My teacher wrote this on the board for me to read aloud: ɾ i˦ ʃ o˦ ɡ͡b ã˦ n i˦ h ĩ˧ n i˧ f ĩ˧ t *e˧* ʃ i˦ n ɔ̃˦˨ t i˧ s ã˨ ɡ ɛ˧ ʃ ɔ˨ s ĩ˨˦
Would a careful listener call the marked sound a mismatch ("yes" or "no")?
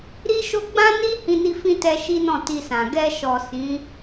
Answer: yes